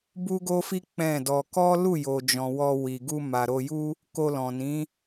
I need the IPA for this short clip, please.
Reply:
b u˦ ɡ o˦ f i˦ k͡p ɛ̃˦˨ d ɔ˧ k ɔ˦ l u˦˨ j o˨ d͡ʒ ɔ̃˨ w ɔ˧ w i˨ ɡ u˧ m a˨ ɾ o˧ j u˦ | k o˧ l ɔ̃˨ n ĩ˨˦

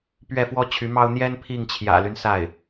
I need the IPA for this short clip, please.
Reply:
p ɥ ɛ˥˩ f w ɔ˥ t͡ɕʰ y˧˥ m ɑ˥ ʊ̯ n̪ j ɛ˥ n pʰ i˥˩ ŋ t͡ɕʰ j ä̰˨˩ l y˦ n s a˥˩ ɪ̯

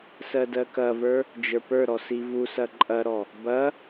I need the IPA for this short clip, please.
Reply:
s ɜ d ɜ k ɐ v ə˞ | d͡ʒ ə˞ p ə˞ ɾ ɔ s i v u s ɐ ǃʼ ɐ ɾ ɔ | b ɐ

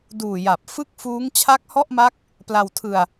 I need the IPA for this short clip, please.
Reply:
d uː˨˩ j a˨˩ p̚ f ɯ˥˩ k̚ f uː˦˥ ŋ t͡ɕʰ a˦˥ k̚ h ɔ˥˩ ʔ m a˦˥ k̚ | p l a˧ w tʰ ɯ˧ a̯

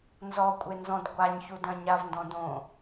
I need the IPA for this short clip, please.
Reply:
n z ɔ kʷʼ e n z ɔ̃ d ɡʷ a ɲ ç u d ɐ̃ ɲ a v n d ɔ̃ d õ

